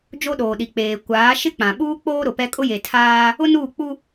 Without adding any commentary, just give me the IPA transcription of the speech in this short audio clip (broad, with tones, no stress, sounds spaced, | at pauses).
d͡ʒ o˦ ɗ oː˨ ɗ i˨ k͡p eː˨ kʷ aː˨˦ ʃ ɪ˦ k͡p ã˨ ɓ uː˦ k͡p oː˦ ɾ ʊ˨ p ɛ˦ kʼ ʊ˦ j e˨ tʰ aː˦ | ʊ˦ n uː˦˨ k͡p u˦